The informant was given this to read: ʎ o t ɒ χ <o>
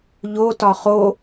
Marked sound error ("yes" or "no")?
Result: no